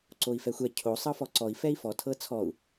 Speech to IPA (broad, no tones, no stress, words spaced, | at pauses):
ǀoi̯fɛxʷɛ cʰo sˤɤfɔǀɔi̯ fɛi̯fɔ tʰɤt͡sʰɔu̯